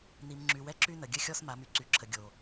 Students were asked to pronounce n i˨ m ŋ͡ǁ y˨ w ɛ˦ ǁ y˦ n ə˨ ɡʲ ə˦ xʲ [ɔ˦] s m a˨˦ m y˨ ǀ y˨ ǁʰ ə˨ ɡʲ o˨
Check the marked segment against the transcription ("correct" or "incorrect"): correct